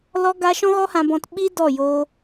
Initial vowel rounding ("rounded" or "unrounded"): rounded